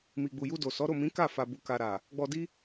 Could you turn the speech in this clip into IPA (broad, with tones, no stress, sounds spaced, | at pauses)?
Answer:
m i˨ ɡ͡b u˨ j u˧ d o˨ s ɔ˨˦ ɾ o˦˨ m ĩ˨˦ k a˦˨ f a˨ b u˨ k a˨ ɾ a˨ | ɡ͡b ɔ˧ d i˦